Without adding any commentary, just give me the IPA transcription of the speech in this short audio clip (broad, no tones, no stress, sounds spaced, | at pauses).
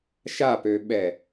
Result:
ʃ a p ø ɓ ɛ